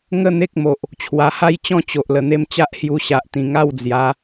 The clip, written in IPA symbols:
ŋ ə˥˧ n̪ e˦ k̚ m o˨ ʔ | t͡ɕʰ w a˨˩ h a˥˧ j t͡ɕ ɔ̃˦ t͡ɕ o˨ ʔ l ə˨˩ n̪ e˧ m t͡ɕ a˦ ʔ h j u˧ ɕ a˨ ʔ t̪ ĩ˨˩ ŋ a˥˧ w d͡z j a˨˦

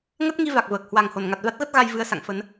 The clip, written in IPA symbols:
ŋ ə˦˥ t̚ ŋ i˧ v a˨˩ k̚ v əː˨˩ k̚ h w a˨˩ ŋ h o˧˩ n ŋ a˨˩ t̚ v a˦˥ t̚ ɣ ə˦˥ t̚ ɣ a˧ j v ɨ˧ ə̯ s a̰˧˨ ŋ f ə˨˦ n

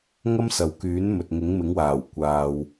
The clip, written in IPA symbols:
ŋ ɐ˥ m s ɐ˨ w k yː˨˥ n m ɵ˨ t̚ ŋ ɪ˨˥ ŋ m ɪ˨˥ ŋ w aː˨˩ w kʷ aː˨ w

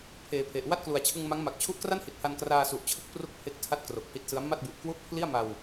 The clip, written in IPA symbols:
pʰ eː˩˦ pʰ e˨˩ ʔ w a˥˩ t̚ k l u˨˩ a̯ t͡ɕʰ ɯ˧ ŋ m a˦˥ ŋ m a˨˩ k̚ t͡ɕʰ u˦˥ ʔ k r a˥˩ n h i˨˩ t̚ h a˧ n k r aː˧ s u˨˩ ʔ t͡ɕʰ ɯ˦˥ k̚ p r u˥˩ k̚ pʰ e˦˥ k̚ tʰ a˥˩ t̚ k r o˨˩ k̚ h i˦˥ t̚ s ɯ˦˥ a̯ m a˥˩ t̚ b u˨˩ ʔ k w u˥˩ ʔ pʰ l i˥˩ a̯ m a˧ w

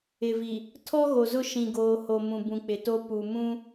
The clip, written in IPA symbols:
ɪ˨ v i˨ | tʰ ɔ˦ ɣ o˨ z ʊ˦˨ ʃ ĩ˨ ɡ oː˨ h o˨ m ũ˨ b ũ˨ k͡p ɪ˨ t o˦ p u˨ m ũ˦

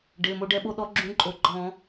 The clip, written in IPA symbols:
ɖ e˩˧˩ m o˧ ɖ ɛ˧ ɓ o˧ ɗ ɔ˨˥ ɡ͡ǁ ũ˨˥ ǃʼ o˩˧˩ ɡ͡ǃ ɔ̃˧˩˧

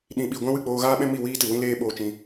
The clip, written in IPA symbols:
ɗ ĩ˨ ɓ i˨ ɡʷ ɛ̃˦ w ɨ˦˨ k͡p oː˧ ɣ aː˦ ɓ ɛ̃˦ m i˦˨ w iː˦ t ɨ˨ w ĩ˦ l eː˦ ɓ oː˧ t͡ʃ ĩ˧

